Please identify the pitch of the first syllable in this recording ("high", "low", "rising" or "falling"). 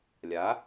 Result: rising